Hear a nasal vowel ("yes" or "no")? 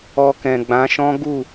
yes